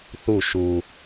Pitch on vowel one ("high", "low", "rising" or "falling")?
falling